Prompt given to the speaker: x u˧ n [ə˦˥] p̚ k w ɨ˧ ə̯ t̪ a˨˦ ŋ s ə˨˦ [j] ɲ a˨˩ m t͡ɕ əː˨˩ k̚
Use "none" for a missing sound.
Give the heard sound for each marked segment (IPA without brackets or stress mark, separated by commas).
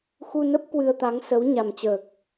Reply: ə˦˥, w